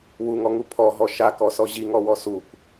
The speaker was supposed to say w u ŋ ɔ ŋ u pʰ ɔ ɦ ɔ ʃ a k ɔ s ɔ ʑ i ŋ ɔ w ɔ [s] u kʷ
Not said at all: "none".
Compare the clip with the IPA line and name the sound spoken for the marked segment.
s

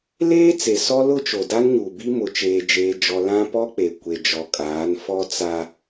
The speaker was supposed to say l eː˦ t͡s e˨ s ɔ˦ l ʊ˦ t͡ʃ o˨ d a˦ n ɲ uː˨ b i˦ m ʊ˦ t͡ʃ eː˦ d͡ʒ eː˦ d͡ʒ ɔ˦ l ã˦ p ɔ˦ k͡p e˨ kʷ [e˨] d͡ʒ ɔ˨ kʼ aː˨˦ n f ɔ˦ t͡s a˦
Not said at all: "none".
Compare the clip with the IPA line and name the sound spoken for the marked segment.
e˨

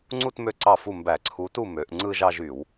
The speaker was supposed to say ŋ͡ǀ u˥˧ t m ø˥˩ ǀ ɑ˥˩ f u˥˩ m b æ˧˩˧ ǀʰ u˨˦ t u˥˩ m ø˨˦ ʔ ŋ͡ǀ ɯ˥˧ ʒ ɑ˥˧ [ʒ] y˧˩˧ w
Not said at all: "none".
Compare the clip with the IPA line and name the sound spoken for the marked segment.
ʒ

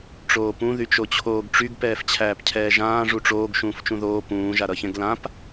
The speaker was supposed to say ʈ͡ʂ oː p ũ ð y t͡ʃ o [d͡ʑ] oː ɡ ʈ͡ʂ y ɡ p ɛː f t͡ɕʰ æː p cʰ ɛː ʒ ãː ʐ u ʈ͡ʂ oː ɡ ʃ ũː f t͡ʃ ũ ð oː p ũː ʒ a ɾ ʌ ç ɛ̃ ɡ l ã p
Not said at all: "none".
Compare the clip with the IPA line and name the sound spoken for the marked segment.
t͡ɕʰ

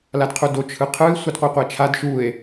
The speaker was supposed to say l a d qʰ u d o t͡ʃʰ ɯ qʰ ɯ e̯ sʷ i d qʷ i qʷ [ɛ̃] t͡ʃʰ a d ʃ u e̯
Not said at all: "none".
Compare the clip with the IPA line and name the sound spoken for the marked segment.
ɛ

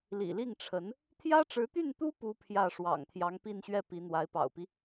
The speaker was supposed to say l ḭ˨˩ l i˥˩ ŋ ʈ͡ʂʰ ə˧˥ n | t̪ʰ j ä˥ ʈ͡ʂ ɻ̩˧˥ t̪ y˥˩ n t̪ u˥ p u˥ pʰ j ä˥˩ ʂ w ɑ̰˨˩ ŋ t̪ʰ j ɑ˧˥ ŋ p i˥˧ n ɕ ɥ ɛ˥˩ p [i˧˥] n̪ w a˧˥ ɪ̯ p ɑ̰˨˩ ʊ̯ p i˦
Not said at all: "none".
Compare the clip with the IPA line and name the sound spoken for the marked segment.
i˧˥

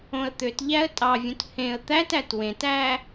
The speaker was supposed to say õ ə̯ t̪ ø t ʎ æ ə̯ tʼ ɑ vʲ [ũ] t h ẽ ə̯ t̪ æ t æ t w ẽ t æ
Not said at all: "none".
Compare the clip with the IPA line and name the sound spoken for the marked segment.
ũ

